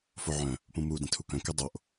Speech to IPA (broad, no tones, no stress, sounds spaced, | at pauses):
f o ʕ œ̃ | p ũ m u d ĩ tʰ u k œ̃ k ɘ dˤ o ʔ